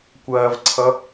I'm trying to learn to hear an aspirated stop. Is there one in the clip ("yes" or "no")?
yes